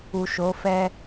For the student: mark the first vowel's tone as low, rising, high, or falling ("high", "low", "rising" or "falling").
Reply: low